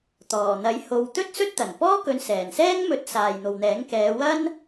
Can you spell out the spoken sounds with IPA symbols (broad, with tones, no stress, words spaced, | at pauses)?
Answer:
t̪ɔː˨˩n̪ɐ˨˥jho˨˧w t̪ɵ˥t̚sɵ˥t̚t̪ɐ˨˩npɔː˥ kɵ˨˧nsɛː˨˩nsɛː˥ŋmɵ˨˥t̚ saː˨jn̪o˨wn̪ɛː˨˥ŋ kɛː˨˧wɐ˥n